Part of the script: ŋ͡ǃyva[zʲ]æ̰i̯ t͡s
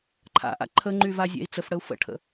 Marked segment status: correct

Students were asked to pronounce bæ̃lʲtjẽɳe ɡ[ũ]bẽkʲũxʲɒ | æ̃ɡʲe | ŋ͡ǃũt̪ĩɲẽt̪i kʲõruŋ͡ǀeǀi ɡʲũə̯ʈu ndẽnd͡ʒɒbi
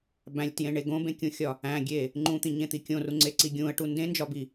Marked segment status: incorrect: õ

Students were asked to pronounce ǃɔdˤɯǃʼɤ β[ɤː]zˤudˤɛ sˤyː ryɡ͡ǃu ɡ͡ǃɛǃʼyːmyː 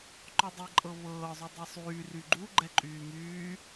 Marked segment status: correct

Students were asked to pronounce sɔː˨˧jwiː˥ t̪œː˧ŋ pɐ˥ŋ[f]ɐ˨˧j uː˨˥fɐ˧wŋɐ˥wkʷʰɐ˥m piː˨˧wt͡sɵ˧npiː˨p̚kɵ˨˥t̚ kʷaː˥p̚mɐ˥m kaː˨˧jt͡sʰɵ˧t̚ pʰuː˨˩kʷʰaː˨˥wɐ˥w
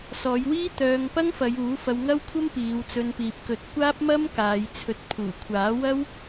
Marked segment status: correct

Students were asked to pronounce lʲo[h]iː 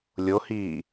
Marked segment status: correct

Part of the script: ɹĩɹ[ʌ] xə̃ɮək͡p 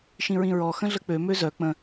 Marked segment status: incorrect: ɔ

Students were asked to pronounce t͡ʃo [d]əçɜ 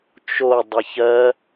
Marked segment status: incorrect: dˤ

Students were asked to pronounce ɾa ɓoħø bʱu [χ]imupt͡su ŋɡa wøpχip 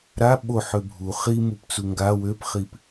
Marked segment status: correct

